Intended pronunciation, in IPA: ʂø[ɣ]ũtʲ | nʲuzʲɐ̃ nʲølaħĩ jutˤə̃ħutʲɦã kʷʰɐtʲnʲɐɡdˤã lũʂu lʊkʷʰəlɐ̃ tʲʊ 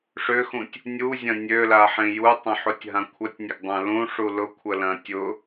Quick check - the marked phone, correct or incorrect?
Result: incorrect